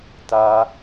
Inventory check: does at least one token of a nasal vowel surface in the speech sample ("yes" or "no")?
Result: no